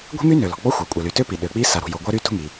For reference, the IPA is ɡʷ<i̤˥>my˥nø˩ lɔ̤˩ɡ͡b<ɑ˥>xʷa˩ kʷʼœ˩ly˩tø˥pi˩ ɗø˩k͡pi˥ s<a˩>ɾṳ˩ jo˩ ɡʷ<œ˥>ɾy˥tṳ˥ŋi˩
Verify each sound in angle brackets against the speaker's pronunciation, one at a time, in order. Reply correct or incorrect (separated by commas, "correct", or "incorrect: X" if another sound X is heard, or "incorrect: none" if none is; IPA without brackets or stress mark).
correct, incorrect: ɔ˥, correct, correct